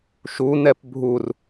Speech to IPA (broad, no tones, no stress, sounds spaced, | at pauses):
ʃ u n ɛ p bʱ u r